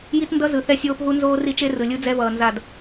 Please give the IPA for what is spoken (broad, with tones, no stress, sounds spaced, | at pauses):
j i˦ t n d ʌ˦ z ɯ˨ θ ɛ˦ sʲ oː˦ p ɦ u˦ n z oː˦ r i˦ t͡ʃ e˦ r ɯ˨ lʲ ɯ˦ d͡z ɛ˦ v ʌː˨ n z a˦˨ d